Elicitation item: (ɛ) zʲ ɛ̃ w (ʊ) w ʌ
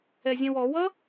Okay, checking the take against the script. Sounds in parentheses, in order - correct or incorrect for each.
correct, incorrect

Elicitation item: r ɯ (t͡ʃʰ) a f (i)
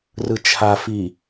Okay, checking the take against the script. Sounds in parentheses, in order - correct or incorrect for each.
correct, correct

